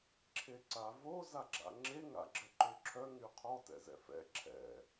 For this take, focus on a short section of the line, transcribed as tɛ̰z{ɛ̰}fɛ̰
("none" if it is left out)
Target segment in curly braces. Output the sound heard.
ɛ̰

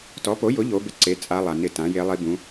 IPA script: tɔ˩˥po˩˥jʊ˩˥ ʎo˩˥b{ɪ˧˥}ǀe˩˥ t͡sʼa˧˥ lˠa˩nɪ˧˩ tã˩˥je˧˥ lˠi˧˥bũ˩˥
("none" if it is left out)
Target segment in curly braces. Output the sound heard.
ɪ˧˥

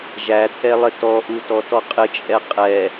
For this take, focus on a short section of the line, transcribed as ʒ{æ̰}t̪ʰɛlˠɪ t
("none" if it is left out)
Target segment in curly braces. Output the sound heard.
æ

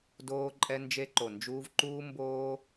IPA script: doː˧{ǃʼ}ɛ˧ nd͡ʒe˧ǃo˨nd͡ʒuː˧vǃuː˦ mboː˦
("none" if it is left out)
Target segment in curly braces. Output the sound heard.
ǃʼ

